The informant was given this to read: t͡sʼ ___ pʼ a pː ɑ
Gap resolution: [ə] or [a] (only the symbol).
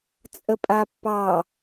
ə